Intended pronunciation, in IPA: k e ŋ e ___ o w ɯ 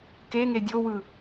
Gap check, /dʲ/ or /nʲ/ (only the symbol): dʲ